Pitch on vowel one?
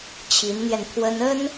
rising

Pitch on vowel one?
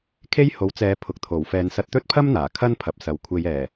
high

